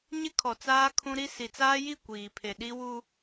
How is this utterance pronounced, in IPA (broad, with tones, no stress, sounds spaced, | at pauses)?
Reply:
ɲ ɪ˦ kʰ ɔ˨ t͡s aː˦ kʰ ũ˦ ɾ i˦ s i˨ t͡s aː˦ j i˦˨ kʷ iː˨ pʰ e˨ ɗ i˦ w u˦